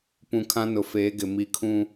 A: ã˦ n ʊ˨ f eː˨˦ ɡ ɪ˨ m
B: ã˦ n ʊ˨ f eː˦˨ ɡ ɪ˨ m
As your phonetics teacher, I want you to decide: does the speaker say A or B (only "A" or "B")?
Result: A